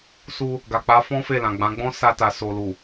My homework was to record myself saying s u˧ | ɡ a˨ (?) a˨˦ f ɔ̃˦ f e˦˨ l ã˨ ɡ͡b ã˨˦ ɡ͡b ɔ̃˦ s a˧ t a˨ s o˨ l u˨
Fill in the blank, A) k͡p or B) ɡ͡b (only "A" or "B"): A